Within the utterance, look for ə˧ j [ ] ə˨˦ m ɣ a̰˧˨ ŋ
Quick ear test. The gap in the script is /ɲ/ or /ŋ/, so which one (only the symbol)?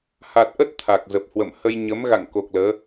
ɲ